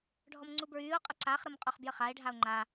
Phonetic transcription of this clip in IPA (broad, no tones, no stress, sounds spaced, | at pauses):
ɖʱ ɔ m ŋ͡ǀ u b ɹ yː o̯ qʼ ə ǀ a χ ɾ ə m qʼ ɔ χ b j ə χ a e̯ ɖʱ a o̯ ŋ͡ǃ a